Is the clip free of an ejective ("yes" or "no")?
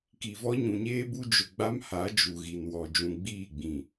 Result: yes